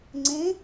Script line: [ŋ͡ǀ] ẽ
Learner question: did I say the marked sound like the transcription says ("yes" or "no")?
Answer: yes